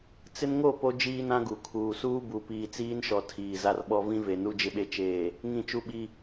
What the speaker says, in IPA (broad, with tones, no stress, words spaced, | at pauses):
t͡sɪ˦nŋo˦˨ po˦ d͡ʒiː˦nã˦ɡu˨ kʰuː˨ suː˦bu˨ piː˨t͡siː˦nʃɔ˨ tʰiː˨za˦rɓɔ˦ vĩ˦ve˨ nu˦d͡ʒɪ˦ɓe˦ t͡ʃeː˨ | ŋĩ˦˨t͡ʃu˦ɓi˦